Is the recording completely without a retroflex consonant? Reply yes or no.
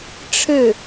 no